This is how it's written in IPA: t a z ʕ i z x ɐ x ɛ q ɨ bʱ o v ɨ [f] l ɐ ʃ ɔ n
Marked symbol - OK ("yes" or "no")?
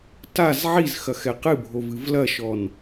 no